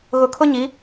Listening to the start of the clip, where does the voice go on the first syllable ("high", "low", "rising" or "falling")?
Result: low